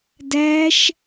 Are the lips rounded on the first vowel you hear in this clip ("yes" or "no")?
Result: no